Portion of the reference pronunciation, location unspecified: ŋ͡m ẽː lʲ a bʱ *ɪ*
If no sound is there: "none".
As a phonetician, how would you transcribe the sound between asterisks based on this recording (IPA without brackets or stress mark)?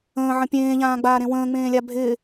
ɪ